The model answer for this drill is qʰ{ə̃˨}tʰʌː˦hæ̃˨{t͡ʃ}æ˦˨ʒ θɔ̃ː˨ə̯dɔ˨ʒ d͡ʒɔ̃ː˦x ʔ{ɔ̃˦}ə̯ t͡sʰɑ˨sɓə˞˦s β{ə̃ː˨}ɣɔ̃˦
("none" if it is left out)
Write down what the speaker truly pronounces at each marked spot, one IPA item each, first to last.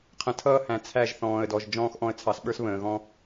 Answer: ə̃˨, t͡sʰ, ɔ̃˦, ə̃ː˨

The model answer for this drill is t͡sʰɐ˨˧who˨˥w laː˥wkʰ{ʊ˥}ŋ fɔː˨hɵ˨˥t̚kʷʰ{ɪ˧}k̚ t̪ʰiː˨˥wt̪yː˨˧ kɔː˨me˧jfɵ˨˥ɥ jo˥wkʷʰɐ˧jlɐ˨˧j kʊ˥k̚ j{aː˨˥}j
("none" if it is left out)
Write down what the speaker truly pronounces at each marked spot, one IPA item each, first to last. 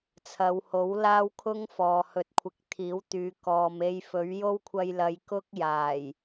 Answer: ʊ˥, ɪ˨˥, aː˨˩

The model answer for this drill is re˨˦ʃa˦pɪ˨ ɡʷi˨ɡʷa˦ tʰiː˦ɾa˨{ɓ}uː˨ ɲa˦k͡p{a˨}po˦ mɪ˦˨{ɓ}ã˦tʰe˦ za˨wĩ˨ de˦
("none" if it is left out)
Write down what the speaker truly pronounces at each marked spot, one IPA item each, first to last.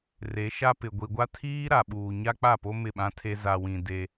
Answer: ɓ, a˦˨, ɓ

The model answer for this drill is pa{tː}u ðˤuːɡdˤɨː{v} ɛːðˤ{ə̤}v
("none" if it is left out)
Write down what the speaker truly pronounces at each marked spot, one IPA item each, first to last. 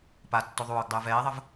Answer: tː, v, ə

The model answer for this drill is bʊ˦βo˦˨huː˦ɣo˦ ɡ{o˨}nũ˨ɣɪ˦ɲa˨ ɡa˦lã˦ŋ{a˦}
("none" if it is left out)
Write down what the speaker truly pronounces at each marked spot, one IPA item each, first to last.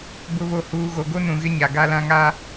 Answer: o˦, a˦

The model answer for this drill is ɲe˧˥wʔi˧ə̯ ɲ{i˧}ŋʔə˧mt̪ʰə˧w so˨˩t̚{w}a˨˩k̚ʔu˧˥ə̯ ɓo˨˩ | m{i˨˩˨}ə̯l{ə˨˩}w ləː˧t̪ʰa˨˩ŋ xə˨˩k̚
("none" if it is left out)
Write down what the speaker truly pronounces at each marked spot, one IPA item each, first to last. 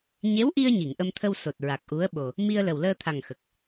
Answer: i˨˩˨, ɹ, i˧, ə˨˩

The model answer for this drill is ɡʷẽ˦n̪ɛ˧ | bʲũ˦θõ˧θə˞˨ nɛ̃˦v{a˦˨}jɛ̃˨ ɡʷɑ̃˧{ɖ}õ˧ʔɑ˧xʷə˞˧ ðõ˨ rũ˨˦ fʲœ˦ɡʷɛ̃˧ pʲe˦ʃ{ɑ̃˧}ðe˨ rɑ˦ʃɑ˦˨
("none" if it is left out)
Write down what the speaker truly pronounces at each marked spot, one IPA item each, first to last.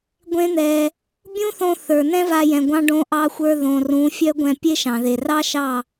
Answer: a˧, ɖ, ɑ̃˨

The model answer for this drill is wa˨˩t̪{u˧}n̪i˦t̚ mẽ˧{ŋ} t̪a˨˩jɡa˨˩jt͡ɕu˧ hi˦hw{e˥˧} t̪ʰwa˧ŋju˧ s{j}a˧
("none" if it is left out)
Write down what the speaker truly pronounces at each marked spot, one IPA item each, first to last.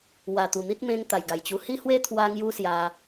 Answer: u˨˩, ŋ, e˦, j

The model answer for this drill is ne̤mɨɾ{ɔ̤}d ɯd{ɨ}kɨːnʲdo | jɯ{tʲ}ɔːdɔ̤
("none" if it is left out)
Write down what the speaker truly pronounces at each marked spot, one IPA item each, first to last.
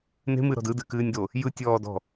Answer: ɔ̤, ɨ, tʲ

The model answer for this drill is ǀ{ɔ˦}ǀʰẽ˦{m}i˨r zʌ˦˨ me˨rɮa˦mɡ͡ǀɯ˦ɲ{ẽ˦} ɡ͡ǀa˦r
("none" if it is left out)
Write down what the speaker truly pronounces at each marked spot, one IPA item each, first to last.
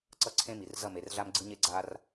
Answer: ʌ˦, m, e˦

